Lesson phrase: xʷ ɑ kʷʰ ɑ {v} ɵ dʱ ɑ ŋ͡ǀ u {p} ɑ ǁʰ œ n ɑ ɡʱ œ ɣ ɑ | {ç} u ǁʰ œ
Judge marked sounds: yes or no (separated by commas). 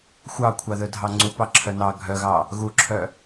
no, yes, no